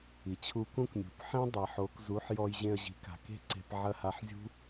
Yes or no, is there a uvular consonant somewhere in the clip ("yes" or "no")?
no